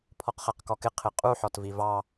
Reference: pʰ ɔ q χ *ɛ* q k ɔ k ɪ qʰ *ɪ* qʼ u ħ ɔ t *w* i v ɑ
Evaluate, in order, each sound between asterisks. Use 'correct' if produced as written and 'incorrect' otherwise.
correct, correct, incorrect: v

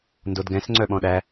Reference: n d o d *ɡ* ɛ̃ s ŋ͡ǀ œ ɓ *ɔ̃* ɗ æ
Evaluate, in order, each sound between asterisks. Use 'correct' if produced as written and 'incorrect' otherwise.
correct, correct

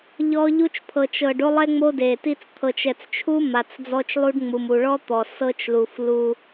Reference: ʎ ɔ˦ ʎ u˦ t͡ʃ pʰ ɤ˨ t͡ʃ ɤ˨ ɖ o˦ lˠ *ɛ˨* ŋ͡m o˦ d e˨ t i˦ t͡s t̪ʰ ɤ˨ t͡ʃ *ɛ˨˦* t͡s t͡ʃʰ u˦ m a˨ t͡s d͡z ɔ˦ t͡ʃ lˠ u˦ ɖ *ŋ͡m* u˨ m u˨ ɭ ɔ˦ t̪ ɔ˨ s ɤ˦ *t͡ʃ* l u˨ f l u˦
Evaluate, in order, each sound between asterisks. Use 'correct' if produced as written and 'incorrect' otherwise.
incorrect: ɛ˦, incorrect: ɛ˨, correct, correct

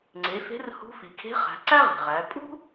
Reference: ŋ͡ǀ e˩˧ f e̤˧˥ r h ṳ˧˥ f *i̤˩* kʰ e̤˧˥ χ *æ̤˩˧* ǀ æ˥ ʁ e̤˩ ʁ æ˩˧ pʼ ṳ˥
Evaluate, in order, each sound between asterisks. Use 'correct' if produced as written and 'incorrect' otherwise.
incorrect: i˩, correct

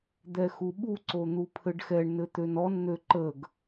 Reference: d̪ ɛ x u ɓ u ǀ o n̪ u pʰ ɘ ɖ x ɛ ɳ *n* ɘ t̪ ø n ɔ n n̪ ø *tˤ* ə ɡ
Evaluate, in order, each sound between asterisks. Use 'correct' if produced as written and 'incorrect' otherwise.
correct, incorrect: ǃ

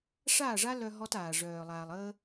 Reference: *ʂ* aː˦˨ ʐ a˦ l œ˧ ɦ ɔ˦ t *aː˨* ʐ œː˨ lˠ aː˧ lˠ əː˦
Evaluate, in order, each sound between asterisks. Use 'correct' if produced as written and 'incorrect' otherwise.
correct, correct

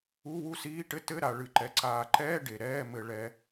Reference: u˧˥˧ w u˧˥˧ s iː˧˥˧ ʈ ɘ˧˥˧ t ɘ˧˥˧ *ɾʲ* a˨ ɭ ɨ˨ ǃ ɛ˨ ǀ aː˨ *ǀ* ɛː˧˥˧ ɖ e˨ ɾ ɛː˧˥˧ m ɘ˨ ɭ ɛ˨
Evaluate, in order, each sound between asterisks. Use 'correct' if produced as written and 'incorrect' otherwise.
incorrect: ɾ, incorrect: ǃ

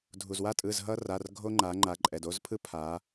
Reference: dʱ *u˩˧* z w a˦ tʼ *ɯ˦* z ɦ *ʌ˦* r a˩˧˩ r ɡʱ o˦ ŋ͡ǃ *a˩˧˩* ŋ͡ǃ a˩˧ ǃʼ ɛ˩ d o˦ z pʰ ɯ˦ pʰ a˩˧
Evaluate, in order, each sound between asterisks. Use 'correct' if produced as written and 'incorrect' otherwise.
incorrect: u˩, incorrect: ɯ˩˧˩, correct, incorrect: a˩˧

